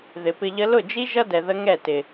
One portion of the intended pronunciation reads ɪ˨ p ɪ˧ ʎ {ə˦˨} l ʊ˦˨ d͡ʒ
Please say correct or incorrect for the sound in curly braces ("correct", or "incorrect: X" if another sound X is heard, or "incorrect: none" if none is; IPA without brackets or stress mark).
incorrect: ə˦